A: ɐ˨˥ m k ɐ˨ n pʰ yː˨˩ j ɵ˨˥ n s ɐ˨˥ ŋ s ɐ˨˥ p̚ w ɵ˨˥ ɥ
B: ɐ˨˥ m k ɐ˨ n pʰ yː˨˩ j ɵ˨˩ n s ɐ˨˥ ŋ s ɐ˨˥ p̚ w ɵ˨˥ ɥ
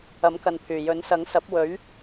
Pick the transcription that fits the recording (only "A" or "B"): A